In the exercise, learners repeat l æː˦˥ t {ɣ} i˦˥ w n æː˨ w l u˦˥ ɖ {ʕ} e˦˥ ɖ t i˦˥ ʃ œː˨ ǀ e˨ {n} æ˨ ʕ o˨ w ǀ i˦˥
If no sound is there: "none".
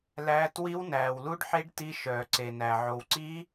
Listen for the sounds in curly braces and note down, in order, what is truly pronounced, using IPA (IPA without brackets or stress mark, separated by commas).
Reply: w, ħ, n